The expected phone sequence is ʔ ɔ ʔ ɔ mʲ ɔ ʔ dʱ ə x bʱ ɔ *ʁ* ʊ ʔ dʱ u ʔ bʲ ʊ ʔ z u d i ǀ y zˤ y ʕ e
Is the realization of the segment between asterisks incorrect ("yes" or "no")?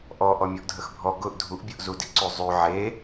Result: yes